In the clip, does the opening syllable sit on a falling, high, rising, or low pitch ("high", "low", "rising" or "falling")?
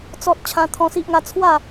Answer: high